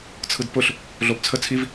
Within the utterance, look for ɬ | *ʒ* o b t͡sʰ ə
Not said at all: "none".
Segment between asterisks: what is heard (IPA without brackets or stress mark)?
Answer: ɮ